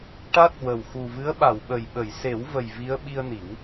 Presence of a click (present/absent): absent